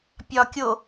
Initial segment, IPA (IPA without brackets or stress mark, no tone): pʲ